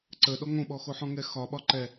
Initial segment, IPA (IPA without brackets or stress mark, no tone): ǀ